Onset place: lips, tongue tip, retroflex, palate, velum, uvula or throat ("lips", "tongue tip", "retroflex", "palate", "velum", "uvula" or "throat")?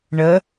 retroflex